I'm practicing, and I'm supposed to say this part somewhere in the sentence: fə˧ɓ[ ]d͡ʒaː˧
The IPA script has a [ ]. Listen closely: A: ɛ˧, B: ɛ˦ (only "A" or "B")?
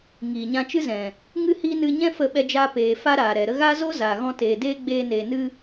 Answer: A